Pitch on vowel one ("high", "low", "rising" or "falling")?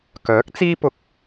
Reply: rising